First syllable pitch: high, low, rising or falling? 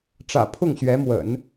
low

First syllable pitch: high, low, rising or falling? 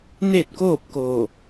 falling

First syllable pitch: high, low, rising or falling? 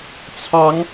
rising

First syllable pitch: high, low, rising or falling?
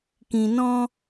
low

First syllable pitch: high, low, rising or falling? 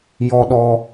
high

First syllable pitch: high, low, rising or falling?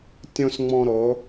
high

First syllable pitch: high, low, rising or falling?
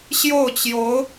falling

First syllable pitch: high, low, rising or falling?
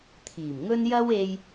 low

